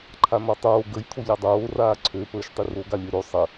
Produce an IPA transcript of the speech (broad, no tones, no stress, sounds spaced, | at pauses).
ǃʰ a n̪ ɔ tˤ oː ɡ ə j t̪ʰ o ʎ a dˤ oː r aː ǀʰ ø p əː ʃ tˤ i r o ɡ a lʲ ø ɾ o sˤ ə